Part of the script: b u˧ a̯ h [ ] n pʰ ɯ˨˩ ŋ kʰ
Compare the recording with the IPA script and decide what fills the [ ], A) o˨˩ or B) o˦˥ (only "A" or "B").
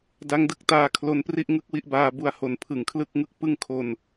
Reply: A